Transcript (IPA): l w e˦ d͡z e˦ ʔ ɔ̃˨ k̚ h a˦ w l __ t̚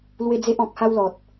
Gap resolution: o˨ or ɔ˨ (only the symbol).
ɔ˨